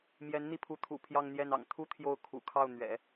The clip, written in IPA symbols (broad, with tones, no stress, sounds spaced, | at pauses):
m j ɛ˧˥ n n̪ i˥˩ pʰ u˧˥ t̪ʰ ṵ˨˩ pʰ j ɑ˥˧ ŋ n̪ j ɛ˥˩ n ɑ̰˨˩ ŋ t̪ʰ u˥ t̪ʰ j o˥˩ ʊ̯ kʰ ṵ˨˩ kʰ ɑ˥˩ ʊ̯ n̪ ɥ ɛ̰˨˩˦